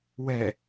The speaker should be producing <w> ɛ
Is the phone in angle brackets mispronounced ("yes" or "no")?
no